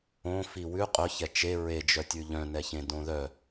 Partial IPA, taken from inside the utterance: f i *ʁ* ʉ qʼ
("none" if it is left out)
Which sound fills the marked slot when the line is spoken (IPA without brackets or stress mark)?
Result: w